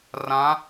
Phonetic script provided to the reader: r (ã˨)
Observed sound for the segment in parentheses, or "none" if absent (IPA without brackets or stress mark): ã˨˦